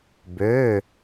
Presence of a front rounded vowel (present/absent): present